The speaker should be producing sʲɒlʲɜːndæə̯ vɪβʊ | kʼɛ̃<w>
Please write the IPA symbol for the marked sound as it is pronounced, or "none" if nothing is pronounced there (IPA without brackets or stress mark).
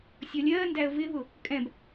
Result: b